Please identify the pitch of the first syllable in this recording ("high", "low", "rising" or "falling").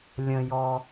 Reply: low